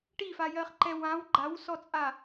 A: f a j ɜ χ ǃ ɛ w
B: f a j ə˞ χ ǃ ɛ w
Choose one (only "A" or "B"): A